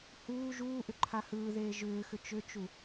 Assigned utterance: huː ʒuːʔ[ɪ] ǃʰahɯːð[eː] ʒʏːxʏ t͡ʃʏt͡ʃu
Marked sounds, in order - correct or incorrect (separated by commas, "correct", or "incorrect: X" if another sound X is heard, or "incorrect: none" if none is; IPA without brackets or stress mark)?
incorrect: ʏ, correct